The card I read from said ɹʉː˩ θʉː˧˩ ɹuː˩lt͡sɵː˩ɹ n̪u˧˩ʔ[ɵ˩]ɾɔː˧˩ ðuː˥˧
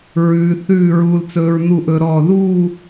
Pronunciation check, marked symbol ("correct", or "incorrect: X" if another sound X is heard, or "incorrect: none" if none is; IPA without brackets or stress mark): correct